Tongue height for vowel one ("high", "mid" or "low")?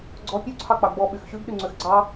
mid